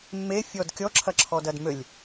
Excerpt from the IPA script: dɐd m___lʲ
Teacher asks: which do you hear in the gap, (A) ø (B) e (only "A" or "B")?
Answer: A